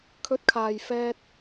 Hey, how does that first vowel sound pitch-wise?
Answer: rising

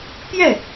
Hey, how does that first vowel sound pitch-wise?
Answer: falling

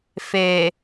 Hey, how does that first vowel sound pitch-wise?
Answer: low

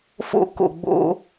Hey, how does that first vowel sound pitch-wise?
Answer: falling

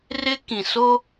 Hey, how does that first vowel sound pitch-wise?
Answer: high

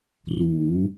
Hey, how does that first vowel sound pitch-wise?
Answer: rising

